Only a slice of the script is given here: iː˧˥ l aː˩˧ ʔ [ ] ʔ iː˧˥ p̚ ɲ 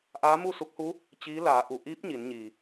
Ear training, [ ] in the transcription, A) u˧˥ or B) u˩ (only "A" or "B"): B